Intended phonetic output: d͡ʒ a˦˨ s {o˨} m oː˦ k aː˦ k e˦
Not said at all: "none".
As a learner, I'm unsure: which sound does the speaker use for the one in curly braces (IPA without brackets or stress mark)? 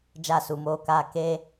u˨